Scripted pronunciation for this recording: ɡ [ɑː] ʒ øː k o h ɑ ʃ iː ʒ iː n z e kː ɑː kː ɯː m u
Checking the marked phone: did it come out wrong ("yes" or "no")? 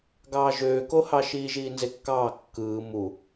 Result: no